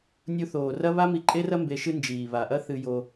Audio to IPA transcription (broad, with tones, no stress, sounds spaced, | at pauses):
nʲ u˧ θ oː˨ r ɐ˦ β a˦ m i˧ ǃʼ e˦ r ɐ˦ m b e˧ ʃ ɨ˦ n d͡ʒ iː˨ β a˨ ʔ ɐ˦ θ ɨ˧ j o˧